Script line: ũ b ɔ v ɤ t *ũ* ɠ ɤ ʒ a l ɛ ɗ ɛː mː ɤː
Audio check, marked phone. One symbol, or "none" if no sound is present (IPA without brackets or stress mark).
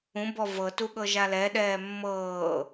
u